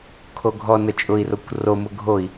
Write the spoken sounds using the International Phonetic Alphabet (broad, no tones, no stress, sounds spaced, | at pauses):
kʰ o ɡʱ ɔ n ə t͡ʃʼ ʊ i̯ r o kʷ r o m ʊ ɡʱ o i̯